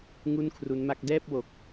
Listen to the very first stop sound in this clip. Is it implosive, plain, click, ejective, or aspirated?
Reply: aspirated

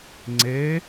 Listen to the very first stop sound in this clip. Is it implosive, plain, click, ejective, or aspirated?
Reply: click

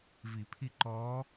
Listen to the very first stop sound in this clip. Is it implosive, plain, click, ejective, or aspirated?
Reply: aspirated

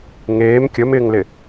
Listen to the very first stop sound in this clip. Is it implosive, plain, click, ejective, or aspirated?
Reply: plain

